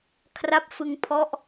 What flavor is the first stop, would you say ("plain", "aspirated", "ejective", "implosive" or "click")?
aspirated